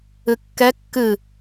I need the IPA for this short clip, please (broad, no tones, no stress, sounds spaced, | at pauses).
ɨ kː ɛ kː ɨ